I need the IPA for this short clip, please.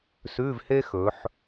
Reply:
s ʉ˧˥˧ v h e˥ x ɵ˩˧ ħ

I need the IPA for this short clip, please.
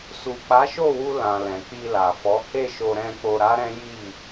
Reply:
s u˨ k͡p a˨˦ ʃ o˦˨ w u˧ l ã˨ l ɛ̃˨ k͡p i˧ l a˨ f ɔ˨˦ h e˦˨ ʃ o˧ ɾ ɛ̃˧ k͡p o˧ ɾ a˦ ɾ ɛ̃˦ j i˦˨

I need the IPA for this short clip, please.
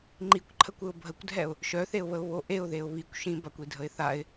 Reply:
ŋ͡ǃ i kʷ ǃʰ ə kʷ ɘ ʊ̯ bʱ ə kʷ dʱ ɛ ʊ̯ | ʃ œ θ e ʊ̯ β ə ʊ̯ β o ʔ e ʊ̯ ð e ʊ̯ β i kʷ ʃ ĩ b a kʷ i dʱ ə ɪ̯ θ a ɪ̯

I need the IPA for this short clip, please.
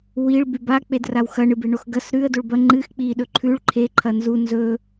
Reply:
w i ɭ b ʉ b a k͡p e d r a w x ɐ ɳ ɨ b e ɳ o x ɡ ɐ s ɾ ʉ ə̯ d o ɭ b ɐ ŋ͡ǃ ɨ x k͡p i ɗ ɵ ǃʰ ʉ ɭ ǃʰ e ǃʰ ɐ n z u n z ɵ

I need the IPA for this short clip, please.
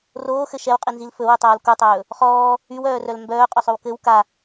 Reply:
r oː x ɘ ʃ ɛ w qʼ i n z i l f ɵ w o tˤ oː l k u tˤ ɵː | χ ɔː | y w œː r œ l m b œː qʼ ɵ sˤ ɵ w k ɘ w k a

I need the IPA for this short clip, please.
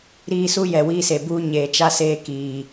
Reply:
ɾ iː˦ s u˦ j ɛ˨ w iː˦ s e˨ b uː˦ ɲ eː˨ t͡ʃ a˦ s eː˦ k iː˨

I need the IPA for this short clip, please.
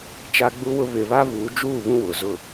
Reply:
t͡ʃ a˦ ɡ͡b u˦ w ʊ˦ β ɪ˨ β a˦ β uː˨˦ d͡ʒ uː˦˨ β ũ˦ w ʊ˨ z ʊ˦˨

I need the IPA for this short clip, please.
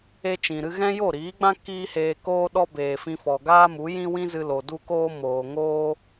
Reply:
e˦ t͡ʃ ĩ˨ ɾ ɨ˦ ɣ ɛ̃˦ j o˦˨ ɾ iː˨˦ ɡ͡b ã˦ k iː˦ h eː˧ k oː˦ ɗ ɔ˦ b eː˨ f ĩ˧ f ɔ˨ ɡ aː˦ m u˨˦ j ĩ˦ w ĩ˦ z ɨ˧ l o˨ d u˧ k oː˧ m oː˨ ŋ oː˦

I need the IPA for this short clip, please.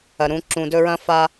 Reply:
ɐ˩ ɾ ũ˨ ǁ ũ˩ d ɵ˦ ɹ ɐ̃˥ f a˦

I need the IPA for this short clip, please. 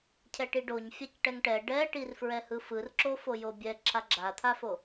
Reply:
cʰ ɛ ʈ i ɖ o ɲ fʲ a c ʈ ɛ ŋ ʈ ɛ ɖ ɛ ʈ i r f ɹ ɛ h ɯ f ɯ r ǁ o f o j o bʲ ɛ ǁʰ a ɡ͡ǁ a t̪ʰ a f o

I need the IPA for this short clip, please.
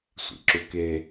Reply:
sʷ ḭ ǁ u k e

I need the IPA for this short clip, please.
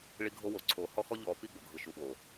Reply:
ɭ i˦ ɡʱ o˦ w o˨ ǀʰ o˨ h ɔ˦ x ɔ˦ ʎ ɔ˨˦ p i˦˨ ɡ͡b o˨ ɡʱ ɯ˨ ʃ u˨ ɓ o˨

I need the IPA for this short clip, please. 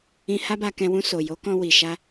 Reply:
ĩ˧ h a˦ b a˧ k ɛ̃˧ w ũ˧ s o˨ j o˨˦ k ɔ̃˧ w i˨ ʃ a˧

